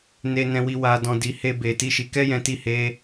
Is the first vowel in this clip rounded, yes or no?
no